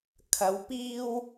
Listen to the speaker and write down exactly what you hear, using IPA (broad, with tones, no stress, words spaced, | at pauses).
kʰɐ˨˧w piː˧w